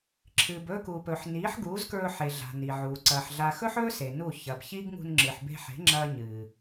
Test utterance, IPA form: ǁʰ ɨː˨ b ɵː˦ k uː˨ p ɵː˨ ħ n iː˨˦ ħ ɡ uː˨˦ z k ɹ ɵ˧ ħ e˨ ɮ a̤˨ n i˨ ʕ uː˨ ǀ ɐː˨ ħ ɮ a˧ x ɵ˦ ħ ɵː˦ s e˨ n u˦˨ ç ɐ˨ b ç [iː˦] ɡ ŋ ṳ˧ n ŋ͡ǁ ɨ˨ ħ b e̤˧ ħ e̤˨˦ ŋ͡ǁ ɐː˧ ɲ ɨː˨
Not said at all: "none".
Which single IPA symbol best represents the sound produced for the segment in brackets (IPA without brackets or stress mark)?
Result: iː˦